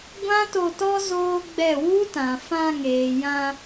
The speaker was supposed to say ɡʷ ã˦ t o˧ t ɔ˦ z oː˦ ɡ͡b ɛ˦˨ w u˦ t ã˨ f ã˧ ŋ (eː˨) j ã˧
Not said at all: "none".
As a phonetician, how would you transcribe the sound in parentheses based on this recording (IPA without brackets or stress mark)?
eː˨